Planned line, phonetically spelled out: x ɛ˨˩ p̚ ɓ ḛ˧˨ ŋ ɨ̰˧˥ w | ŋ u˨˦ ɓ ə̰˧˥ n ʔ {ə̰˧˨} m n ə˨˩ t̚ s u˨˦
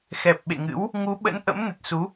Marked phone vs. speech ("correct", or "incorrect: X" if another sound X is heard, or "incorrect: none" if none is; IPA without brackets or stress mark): incorrect: ə̰˧˥